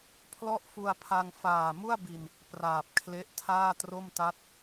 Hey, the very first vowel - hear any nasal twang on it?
no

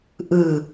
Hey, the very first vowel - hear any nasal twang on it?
no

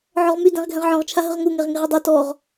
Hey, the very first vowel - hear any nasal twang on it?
no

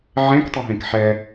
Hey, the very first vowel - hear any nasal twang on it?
yes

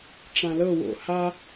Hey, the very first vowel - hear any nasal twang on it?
yes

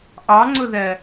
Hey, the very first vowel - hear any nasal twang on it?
no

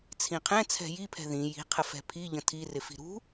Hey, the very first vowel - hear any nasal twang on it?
yes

